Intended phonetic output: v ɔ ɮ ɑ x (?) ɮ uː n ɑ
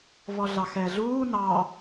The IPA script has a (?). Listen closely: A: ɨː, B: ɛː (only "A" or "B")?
B